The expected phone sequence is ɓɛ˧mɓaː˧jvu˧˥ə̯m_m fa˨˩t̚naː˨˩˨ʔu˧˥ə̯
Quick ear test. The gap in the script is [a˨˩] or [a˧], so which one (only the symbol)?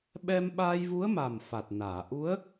a˨˩